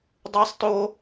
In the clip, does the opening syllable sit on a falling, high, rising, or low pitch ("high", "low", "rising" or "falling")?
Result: high